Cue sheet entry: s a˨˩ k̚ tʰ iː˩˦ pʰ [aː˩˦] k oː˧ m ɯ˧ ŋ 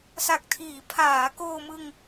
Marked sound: correct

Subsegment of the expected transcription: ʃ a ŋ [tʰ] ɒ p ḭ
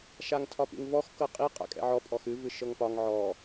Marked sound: correct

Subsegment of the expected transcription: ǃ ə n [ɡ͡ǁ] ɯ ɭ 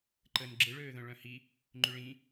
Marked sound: correct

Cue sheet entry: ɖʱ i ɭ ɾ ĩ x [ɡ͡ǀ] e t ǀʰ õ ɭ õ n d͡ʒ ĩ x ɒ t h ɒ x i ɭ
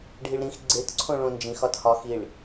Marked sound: correct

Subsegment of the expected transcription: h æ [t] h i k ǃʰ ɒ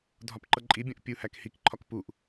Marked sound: incorrect: k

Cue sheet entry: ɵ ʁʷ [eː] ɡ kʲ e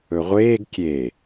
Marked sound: correct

